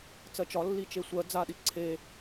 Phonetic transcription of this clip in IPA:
t͡sɜt͡ʃɒ lːit͡ʃesʷɜ d͡zaɗi ǀʰe

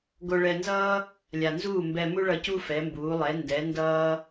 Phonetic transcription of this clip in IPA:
ɡo˧ɭɛ˧nzʌː˥ | lʲa˩nzuː˥˩ mbɛ˧mu˥ɭʌ˧cu˥ fɛ˩˥mbuː˩˥ lˠɛ˩˥ ndɛ˩˥ndʌː˥

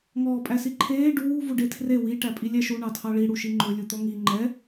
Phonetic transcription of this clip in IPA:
ŋɔːpʼæsiǃʰeː ɖuː vuɖetʰre wi ʈæpʼilʲæʃu ɳɑtʰɑɭi ɽuʃiŋ͡ǃɵ lʲut̪ɔŋi ŋ͡ǃɛ

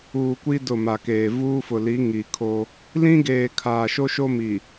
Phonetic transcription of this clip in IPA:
uː˨kʷi˦ dʊ˦˨ma˨keː˨ vuː˦fʊ˨li˨˦ ŋi˨kʰo˦ | lĩ˦ɡeː˨ kʰaː˨ʃo˦ʃo˦ mi˨

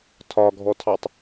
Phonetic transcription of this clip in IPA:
tʰɒɡʱɔtʰɑtˤ

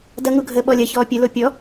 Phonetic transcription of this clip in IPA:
dɐŋu ɡʱəːɓɔlʲɐçɔː pʲəlo pʲɔ

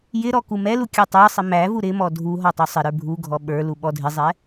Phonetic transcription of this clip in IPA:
jɪɾɔ kumɛlu kʲə˞tˤə˞sˤɪ mævu ɾɪmɔ dʱu ɦɔtˤusˤɪɾə˞ bʱuɡʱɔ ɓə˞lu ɓɔdʱɪzˤɛ

